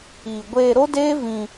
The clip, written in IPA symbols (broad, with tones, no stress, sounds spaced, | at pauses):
iː˨ ɡʷ eː˧ ɾ o˦ d eː˦ v ĩ˧